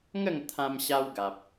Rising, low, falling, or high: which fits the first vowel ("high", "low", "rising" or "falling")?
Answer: falling